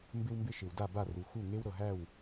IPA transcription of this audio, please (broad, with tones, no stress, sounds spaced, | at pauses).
m b ɪ˥ w m b ɪ˥ ʃ ɪ˩ w d a˥˩ b a˥˩ r u˩ x u˥˩ ŋ e˥ w ɾ ɤ˩ ɦ æ˥˩ w